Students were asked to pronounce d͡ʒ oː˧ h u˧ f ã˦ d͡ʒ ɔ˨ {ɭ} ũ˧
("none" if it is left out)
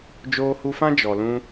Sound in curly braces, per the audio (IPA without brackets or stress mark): l